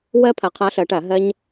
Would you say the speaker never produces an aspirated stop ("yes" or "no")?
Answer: no